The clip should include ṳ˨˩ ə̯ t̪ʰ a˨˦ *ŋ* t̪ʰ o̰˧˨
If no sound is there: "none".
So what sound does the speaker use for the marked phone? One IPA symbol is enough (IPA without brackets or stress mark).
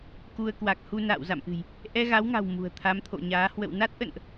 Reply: m